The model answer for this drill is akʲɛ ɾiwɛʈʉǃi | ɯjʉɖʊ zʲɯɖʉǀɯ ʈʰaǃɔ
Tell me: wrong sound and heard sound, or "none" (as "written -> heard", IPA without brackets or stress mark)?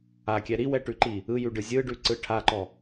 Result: ʊ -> ɯ